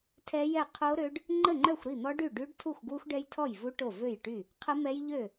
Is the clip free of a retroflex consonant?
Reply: no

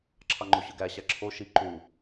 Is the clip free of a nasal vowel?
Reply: yes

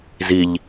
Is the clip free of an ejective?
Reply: yes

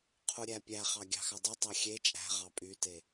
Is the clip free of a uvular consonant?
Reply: no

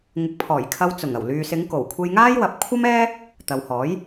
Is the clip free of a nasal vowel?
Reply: yes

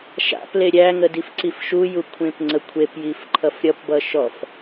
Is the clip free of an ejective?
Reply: yes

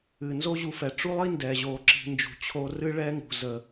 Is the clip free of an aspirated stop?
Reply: no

